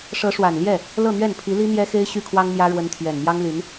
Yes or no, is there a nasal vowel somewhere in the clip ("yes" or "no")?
no